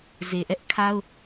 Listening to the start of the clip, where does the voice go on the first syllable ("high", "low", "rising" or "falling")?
low